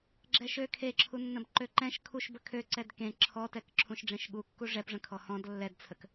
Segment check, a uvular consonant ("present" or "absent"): absent